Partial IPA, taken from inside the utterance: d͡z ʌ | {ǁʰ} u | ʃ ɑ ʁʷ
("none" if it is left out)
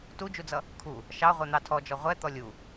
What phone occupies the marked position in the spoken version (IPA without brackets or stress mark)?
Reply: kʰ